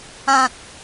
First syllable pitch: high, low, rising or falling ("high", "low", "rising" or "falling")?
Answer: high